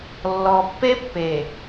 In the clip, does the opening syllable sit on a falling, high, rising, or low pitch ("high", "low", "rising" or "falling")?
low